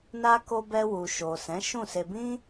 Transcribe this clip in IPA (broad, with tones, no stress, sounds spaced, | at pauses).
n a˦ k o˧ b ɛ˧ w u˨ ʃ o˨ s ɛ̃˨˦ ʃ ũ˦˨ s e˧ b ĩ˦